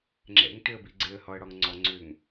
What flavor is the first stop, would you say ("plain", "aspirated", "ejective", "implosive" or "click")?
click